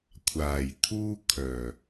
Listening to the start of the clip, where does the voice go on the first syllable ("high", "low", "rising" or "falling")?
low